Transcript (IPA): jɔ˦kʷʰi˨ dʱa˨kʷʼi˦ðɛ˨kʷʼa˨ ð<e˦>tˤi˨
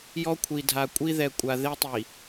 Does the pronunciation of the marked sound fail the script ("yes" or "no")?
no